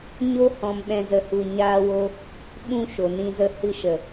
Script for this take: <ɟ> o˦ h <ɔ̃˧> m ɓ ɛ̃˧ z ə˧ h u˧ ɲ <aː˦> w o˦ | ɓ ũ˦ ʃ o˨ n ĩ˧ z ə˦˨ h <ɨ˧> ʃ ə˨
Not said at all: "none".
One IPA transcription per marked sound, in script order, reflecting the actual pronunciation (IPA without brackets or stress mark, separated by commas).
ɲ, ɔ̃˧, aː˦, ɨ˧